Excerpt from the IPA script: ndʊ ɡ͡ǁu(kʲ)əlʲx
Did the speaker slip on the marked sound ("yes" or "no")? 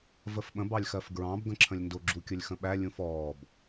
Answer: no